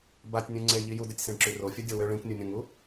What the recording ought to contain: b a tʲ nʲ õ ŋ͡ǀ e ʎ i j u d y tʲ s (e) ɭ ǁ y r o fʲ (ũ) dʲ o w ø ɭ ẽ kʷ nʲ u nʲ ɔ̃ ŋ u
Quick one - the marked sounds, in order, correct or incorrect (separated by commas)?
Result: incorrect, incorrect